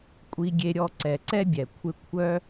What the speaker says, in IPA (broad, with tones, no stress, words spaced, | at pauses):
kʷʼi˧ɡʲe˧ɾʲɔ˧ ǀɛ˨ǀɛ˦bʲɛ˨ kʷʰɪ˦ kʷʰœ˦